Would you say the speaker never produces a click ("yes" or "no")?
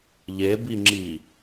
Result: no